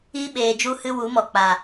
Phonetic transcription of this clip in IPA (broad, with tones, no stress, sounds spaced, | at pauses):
i˦ ɓ eː˨ d͡ʒ u˧ h ɨ˧ w u˨˦ m ɔ˨ k͡p a˨